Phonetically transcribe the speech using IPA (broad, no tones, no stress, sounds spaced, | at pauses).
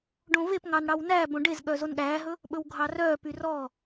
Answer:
ɖ õ v e p ŋ ɑ n ɽ ɑ w n æ b õ ɖ e z ɠ œ z o n ɠ æː ɦ ɵ | ɓ ɵ w ɡʱ ɑ r œː p y r ɔ